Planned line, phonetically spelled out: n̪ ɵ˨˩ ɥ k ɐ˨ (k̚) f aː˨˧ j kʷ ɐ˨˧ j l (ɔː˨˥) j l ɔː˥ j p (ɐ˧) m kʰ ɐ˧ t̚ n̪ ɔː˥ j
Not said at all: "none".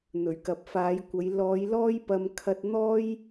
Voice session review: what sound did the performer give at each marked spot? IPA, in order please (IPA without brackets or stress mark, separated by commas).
p̚, ɔː˨˧, ɐ˧